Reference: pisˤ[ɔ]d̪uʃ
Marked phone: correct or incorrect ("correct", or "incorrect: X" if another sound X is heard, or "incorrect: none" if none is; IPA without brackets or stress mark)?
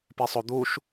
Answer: incorrect: o